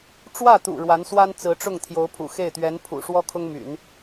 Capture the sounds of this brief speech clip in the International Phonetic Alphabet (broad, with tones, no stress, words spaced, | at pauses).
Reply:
ʈ͡ʂwä˥˩t̪ṵ˨˩ ɻwa˧˥nswa˥nt͡sɹ̩˧˥ʈ͡ʂʊ˥˩ŋ t̪ʰjo˧˥ʊ̯pʰṵ˨˩xe˥˩ɪ̯t̪ɥɛ˧˥n pʰṵ˨˩ ʂwɔ˥kʰʊ˥ŋmy̰˨˩˦n